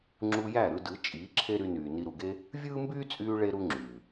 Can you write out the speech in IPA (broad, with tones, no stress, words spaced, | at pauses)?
ŋ͡ǁu˧jæ˦˨ ɾɯ˧dɯ˨˦ t͡ʃʼiː˨˦ǁʰe˦ɾy˧nyː˨ ni˨ɾu˨ɡe˧ | vʲɯː˦mbyː˦t͡sʼyː˧ ɭe˦ɾu˦ŋ͡ǁyː˨